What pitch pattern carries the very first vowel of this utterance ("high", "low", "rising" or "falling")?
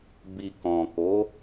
low